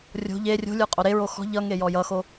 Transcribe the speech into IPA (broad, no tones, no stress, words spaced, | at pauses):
rʲo̤ ʎe rʲo̤lʲə˞ qʼoɾe ɹoxɔ̤ ʎʌŋe jɔjʌxo